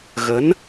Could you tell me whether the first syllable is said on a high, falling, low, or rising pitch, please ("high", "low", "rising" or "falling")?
rising